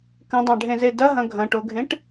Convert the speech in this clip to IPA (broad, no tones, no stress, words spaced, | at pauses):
kə̃dˤɑ̃ɖʱẽze dɐɦɐ̃ ɡʱɐ̃ʈoɡʱẽʈ